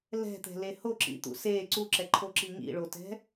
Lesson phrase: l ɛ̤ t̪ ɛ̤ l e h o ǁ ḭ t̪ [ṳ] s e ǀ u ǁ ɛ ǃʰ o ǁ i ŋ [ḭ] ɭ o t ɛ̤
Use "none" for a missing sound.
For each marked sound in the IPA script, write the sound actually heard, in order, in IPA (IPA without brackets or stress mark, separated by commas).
ṵ, ḭ